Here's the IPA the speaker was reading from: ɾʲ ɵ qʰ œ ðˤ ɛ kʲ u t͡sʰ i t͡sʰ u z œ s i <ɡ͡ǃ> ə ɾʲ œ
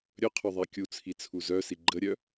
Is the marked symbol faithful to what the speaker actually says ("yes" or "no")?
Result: yes